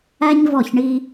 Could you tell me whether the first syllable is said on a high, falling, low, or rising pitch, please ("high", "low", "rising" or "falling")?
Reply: high